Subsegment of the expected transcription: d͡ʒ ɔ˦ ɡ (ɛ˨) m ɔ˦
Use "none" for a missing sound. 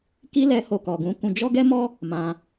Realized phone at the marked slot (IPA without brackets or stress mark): ɛ˦